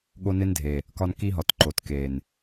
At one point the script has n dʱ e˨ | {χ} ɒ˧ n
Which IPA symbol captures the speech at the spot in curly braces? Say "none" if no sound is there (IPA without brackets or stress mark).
k